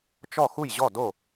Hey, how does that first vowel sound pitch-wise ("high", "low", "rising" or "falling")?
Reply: falling